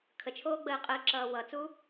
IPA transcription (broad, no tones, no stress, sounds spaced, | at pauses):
kʰ ə t͡ʃʰ oː ɡ͡b əː qʼ əː ǁ ʌː w ʌ t͡s u